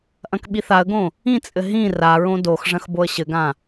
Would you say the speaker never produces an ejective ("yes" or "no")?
no